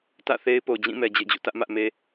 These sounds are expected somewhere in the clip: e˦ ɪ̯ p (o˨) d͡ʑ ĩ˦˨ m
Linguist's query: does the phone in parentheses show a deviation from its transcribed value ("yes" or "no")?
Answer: no